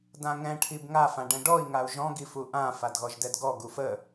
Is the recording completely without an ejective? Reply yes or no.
yes